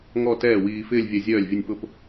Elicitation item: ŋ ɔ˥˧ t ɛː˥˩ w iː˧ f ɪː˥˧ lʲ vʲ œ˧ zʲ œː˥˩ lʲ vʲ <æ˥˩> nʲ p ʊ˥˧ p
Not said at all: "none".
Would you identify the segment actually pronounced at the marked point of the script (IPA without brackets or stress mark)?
ə˥˩